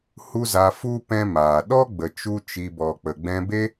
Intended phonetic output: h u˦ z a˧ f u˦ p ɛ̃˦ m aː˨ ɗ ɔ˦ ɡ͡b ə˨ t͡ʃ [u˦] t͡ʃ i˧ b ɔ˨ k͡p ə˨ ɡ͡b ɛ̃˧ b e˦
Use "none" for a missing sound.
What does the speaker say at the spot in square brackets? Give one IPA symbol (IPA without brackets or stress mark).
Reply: u˦